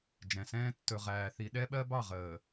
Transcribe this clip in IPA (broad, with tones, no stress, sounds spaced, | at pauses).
d͡ʒ ɛ̃˨ s ɛ̃ː˦ tː ɵ˨ ʁ æː˨ θ i˨ ɗ ɛ˦ ɓ ɜ˦ b ɑ˦˨ ʁ əː˨